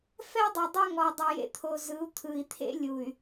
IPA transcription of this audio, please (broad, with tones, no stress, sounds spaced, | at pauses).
f ɛ˦ dˤ u˨ dˤ a˦ ŋ ɔ˨ dˤ ɯ˨ j ḛ˨ t̪ʰ o˨ z ɯ˨˦ u̯ t̪ʰ ɯ˨ i̯ t̪ʰ ḛ˦ lʲ u˨ y̯